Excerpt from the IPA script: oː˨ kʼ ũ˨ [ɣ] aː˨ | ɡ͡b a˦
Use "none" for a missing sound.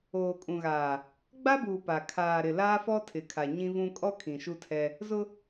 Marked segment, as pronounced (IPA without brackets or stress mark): ɣ